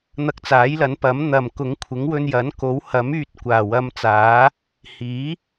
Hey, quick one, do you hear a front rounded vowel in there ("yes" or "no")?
yes